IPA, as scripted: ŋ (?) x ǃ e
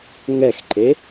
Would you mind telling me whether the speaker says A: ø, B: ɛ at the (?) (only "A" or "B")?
B